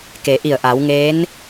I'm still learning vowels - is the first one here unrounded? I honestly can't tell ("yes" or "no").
yes